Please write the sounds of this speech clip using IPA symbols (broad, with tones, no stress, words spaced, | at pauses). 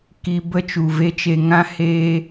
ki˦ bə˦t͡ʃu˨ve˦t͡ʃe˧ ŋã˦ heː˧